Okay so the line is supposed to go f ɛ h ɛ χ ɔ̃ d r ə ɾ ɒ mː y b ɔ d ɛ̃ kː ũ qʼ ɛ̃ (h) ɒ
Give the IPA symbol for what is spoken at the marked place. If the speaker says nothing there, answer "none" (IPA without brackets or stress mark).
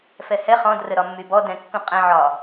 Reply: ʕ